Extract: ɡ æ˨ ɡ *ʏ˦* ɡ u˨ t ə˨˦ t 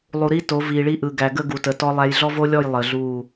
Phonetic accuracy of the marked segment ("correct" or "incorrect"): incorrect